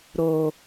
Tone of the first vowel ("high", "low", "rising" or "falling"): low